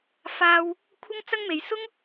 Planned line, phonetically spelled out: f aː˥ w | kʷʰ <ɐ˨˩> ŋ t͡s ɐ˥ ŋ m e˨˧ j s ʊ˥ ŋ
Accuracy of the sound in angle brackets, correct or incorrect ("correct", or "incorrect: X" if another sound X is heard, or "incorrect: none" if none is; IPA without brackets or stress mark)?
incorrect: ɐ˥